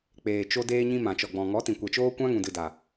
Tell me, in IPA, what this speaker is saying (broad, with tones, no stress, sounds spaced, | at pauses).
k͡p eː˨ t͡ʃ o˧ d eː˦ ɲ ĩ˦ m ã˨ t͡ʃ ɔ˨ ɡ͡b ɔ̃˨ ŋ ɔ˨˦ t ĩ˨ kʷ ɛ˨ t͡ʃ oː˦ kʷ ã˦ ŋ ũ˨ d ɨ˨ d a˨